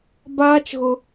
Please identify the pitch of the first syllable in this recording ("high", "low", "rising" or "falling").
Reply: high